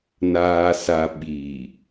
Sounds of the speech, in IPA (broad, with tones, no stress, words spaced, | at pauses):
naː˨sa˨ ɓi˨